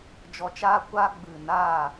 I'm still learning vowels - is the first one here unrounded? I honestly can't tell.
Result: no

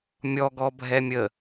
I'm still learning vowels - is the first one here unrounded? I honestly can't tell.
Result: no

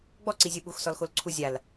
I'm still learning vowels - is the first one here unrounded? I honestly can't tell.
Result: no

